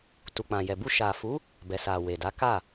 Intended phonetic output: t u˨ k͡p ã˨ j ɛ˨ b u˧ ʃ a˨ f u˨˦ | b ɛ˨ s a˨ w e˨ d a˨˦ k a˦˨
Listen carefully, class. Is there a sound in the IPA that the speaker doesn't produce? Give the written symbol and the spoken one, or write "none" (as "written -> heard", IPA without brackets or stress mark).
none